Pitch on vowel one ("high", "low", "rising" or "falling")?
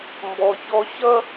high